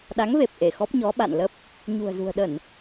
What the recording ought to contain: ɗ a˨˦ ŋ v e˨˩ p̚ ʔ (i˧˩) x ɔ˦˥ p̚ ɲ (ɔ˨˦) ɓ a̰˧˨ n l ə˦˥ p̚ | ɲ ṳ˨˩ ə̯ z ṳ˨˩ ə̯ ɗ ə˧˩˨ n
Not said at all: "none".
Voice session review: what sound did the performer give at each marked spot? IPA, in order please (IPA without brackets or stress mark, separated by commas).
e˧˩, ɔ˨˦